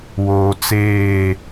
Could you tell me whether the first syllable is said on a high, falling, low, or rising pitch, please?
low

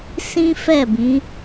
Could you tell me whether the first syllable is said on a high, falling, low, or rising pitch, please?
high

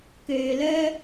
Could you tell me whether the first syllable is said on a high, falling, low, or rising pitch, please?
low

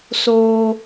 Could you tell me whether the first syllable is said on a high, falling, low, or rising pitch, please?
high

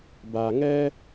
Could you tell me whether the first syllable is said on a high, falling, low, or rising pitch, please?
low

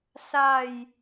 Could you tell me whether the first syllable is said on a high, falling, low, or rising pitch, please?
falling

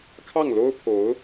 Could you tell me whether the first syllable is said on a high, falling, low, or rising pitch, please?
falling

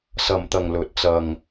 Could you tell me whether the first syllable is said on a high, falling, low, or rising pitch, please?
low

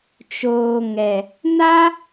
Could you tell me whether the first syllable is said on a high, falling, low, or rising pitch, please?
low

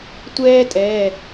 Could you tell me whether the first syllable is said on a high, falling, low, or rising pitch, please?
high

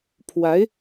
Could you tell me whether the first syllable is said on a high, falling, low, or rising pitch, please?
rising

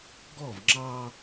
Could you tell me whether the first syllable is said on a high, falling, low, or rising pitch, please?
falling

